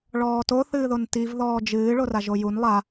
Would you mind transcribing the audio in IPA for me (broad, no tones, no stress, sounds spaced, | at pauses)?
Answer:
ɭ ɔː t o θ ɨː ð o n t i v ð ɔː d͡ʒ ɨː ɭ o r a ʒ o j u n lˠ a